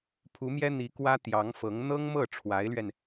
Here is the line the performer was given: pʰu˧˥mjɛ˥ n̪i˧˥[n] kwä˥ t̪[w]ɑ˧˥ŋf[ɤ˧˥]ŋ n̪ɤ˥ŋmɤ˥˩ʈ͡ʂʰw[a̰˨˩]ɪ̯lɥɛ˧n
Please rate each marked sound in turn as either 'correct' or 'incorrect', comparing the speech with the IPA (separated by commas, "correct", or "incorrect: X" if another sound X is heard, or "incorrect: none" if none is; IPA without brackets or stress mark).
incorrect: none, incorrect: j, correct, incorrect: a˧˥